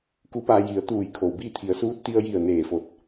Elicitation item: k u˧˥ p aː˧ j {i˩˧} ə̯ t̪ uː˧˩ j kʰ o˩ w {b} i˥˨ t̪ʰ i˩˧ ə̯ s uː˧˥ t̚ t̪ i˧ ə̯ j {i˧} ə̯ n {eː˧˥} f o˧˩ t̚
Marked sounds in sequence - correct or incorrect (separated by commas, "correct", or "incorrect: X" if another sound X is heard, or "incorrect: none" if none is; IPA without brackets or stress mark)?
correct, correct, incorrect: i˧˩, incorrect: eː˧˩